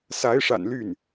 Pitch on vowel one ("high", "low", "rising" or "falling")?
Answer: rising